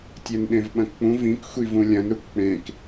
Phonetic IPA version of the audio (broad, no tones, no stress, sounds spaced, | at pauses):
tʲ e n ɗ ẽ v ɓ ɐ̃ k k͡p ũ v ĩ k xʷ i v ũ lʲ ɐ̃ n ɾ u k k͡p ẽ k